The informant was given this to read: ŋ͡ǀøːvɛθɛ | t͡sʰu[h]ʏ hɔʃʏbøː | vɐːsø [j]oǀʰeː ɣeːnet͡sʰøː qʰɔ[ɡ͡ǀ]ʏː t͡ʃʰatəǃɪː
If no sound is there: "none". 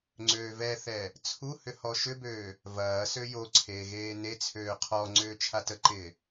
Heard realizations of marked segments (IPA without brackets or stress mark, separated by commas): h, j, ŋ͡ǀ